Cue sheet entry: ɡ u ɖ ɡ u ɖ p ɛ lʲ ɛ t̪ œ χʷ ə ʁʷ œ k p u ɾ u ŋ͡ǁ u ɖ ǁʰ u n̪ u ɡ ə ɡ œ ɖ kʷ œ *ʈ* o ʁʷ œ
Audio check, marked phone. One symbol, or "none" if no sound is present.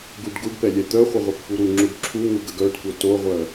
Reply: t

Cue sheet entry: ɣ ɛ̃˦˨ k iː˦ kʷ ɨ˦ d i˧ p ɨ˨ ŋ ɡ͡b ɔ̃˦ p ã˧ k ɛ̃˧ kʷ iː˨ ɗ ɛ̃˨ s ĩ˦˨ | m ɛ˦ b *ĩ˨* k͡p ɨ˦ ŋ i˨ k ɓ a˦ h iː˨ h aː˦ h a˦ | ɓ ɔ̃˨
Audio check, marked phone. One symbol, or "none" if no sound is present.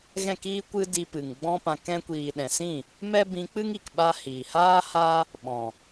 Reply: ĩ˧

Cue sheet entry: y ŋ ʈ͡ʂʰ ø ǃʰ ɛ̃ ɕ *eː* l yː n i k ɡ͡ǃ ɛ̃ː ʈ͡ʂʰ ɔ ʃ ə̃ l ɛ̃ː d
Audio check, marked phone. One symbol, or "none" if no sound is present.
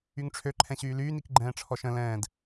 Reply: yː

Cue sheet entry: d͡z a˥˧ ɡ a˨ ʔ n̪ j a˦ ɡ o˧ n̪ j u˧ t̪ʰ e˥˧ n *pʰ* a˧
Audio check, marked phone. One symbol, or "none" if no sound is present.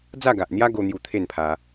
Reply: pʰ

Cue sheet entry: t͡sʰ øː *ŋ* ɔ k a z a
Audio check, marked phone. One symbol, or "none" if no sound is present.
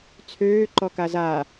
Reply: ǃ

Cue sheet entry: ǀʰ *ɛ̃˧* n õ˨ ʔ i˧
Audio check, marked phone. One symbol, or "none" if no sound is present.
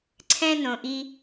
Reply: ɛ̃˧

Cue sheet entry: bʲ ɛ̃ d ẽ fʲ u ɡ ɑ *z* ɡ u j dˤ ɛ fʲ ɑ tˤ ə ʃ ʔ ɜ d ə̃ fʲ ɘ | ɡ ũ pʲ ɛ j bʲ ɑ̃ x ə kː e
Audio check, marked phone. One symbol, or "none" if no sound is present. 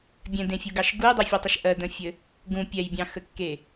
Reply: ʃ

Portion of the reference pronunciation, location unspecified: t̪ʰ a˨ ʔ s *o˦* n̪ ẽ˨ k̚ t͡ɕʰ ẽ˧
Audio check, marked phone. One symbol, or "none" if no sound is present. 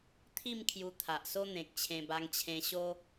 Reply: o˦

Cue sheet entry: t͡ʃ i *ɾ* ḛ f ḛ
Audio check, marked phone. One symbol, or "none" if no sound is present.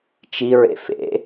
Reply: ɹ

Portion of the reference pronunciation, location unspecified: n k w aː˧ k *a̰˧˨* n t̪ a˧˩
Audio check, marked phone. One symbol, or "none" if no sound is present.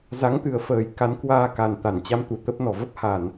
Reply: a˨˩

